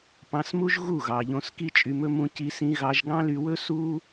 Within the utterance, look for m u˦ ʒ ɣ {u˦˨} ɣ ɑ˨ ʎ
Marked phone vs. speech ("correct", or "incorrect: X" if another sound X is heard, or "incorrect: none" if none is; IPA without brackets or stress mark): correct